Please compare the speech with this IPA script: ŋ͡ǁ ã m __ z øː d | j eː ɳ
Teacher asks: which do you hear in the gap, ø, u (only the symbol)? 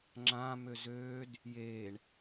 ø